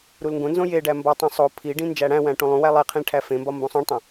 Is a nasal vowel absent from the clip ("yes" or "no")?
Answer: no